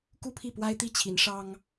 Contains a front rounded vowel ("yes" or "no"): no